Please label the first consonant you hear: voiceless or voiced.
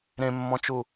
voiced